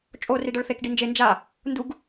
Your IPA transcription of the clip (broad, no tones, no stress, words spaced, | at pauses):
t͡ʃʼo riɖɤɭθek ɖind͡ʒe nd͡ʒa | nduɡ